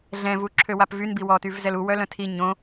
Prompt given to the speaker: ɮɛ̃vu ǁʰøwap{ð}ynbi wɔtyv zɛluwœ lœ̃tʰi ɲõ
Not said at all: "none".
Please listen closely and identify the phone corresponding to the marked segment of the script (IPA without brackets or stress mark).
v